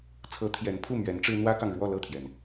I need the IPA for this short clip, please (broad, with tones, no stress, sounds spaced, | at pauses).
t͡sʰ ɤ˧˥ t̪ʰ j ɛ˧˥ n pʰ u˥˩ m ɥ ɛ˧˥ n ʈ͡ʂ ɻ̩˥ n̪ w ä˥ k ɑ˨ ŋ ɻ w ɔ˥˧ l ɤ˥˩ t̪ʰ j ɛ˩ n